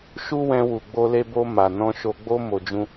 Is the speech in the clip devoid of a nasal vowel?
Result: no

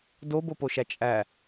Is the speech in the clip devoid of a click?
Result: yes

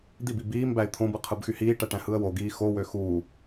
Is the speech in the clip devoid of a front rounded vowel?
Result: no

